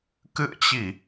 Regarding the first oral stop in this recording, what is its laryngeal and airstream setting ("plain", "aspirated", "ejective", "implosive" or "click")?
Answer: plain